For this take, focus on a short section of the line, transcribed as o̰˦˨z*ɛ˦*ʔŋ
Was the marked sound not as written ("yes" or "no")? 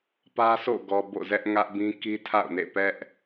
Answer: no